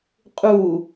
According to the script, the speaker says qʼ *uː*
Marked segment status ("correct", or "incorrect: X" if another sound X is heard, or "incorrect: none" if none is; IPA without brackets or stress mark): incorrect: u